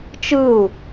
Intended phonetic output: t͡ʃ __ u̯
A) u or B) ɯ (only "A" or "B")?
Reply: B